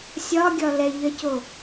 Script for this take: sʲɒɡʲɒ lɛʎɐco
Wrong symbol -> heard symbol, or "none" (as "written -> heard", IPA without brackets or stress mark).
none